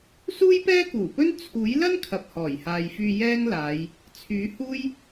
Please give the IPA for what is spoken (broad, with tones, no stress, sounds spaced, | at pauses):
s uː˥ j p ɛː˥ k uː˨˩ p ɵ˥ n t͡sʰ uː˨˥ j l ɐ˥ n kʰ ɐ˨ p̚ h ɔː˨˩ j h aː˨ j f yː˧ j ɛː˥ ŋ l aː˨˧ j | t͡sʰ yː˨˥ h uː˥ j